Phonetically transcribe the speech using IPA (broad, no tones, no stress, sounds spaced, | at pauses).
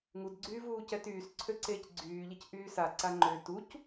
ŋ u d ɡ͡ǀ yː v uː c ɛ t yː s ǀʰ ø ǀ eː c ɡ͡ǀ yː ʎ e c ʔ yː s a ǀ a ŋ͡ǃ ø t u c